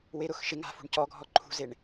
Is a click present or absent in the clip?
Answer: present